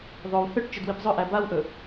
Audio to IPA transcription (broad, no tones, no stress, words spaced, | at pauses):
ðˤow θʏʈ t͡ʃʏdwipzˤɵʔæ bawʔɵ